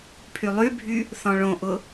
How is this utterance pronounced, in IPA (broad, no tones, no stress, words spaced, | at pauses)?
pʰylˠybʱy | θɔ̃ɭõʔʊ